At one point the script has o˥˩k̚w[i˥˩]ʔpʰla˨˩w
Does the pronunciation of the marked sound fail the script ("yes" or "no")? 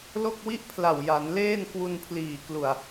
no